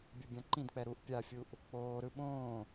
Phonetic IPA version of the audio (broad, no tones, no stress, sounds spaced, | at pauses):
bʲ u bʲ ã ǃ ĩ d k͡p ɛ ɾ u ʔ pʲ a fʲ u ʔ | k͡p oː ɾ ɯ ɓ õː